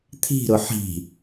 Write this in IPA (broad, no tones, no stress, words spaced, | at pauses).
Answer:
t̪ʰi̤ɾʊ ħi̤